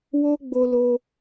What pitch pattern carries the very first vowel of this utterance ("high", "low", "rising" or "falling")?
high